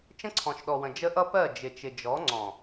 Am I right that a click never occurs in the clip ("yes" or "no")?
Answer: no